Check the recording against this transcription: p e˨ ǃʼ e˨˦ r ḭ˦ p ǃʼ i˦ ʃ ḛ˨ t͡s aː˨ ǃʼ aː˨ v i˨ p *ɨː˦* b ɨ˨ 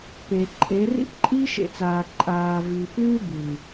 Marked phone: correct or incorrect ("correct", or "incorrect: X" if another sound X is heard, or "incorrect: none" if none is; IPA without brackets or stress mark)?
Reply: correct